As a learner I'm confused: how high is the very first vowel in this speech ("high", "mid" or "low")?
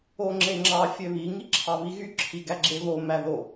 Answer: mid